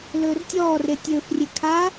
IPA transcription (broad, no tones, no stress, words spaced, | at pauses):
lɵːrtʲɔːre tʲɵːfrʲe kʰa